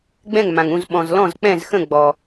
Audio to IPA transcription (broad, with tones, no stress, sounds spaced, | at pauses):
ɡ͡b ɛ̃˥˩ ŋ m ã˩ ŋ ũ˥˩ z ɓ ɔ̃˩ z l ɔ̃˥˩ z k͡p ɛ̃˥˩ z x ə̃˥˩ ɡ͡b ɔ˩